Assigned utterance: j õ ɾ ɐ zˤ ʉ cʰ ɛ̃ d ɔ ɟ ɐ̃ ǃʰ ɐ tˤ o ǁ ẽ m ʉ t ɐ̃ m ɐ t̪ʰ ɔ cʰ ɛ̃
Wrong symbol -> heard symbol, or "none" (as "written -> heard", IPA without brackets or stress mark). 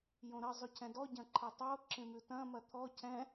none